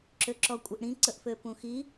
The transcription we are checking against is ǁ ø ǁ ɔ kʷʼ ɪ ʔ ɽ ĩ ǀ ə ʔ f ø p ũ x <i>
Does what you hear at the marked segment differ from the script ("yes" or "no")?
no